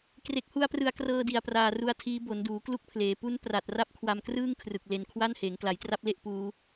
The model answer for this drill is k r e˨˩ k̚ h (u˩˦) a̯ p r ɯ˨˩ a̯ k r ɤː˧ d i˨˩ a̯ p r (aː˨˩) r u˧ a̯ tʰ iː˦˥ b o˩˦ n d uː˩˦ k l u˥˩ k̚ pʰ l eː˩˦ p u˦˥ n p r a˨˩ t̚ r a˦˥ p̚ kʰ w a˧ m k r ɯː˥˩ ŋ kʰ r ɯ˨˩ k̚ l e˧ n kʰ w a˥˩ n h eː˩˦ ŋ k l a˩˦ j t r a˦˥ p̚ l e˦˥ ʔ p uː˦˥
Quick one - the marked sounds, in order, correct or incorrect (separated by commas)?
incorrect, correct